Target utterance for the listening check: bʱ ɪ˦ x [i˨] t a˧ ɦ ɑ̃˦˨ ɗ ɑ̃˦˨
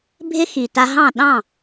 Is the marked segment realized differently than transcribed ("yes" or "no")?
no